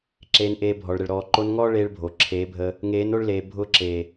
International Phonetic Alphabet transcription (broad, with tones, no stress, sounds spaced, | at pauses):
ǁ eː˧ n ʔ eː˧ bʱ ɔ˨ ɭ ɾ ə˨ ɭ ɾ ɔː˨ ǃ o˧ n ŋ ɔː˦ ɭ eː˦ ɭ bʱ o˨ ǁʰ eː˨˦ bʱ əː˧ | ŋ eː˨˦ n o˧ ɭ l eː˨ bʱ ʊː˧ ǁ eː˨